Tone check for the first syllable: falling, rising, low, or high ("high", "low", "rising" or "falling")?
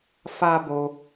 high